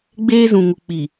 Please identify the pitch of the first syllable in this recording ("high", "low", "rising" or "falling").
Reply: high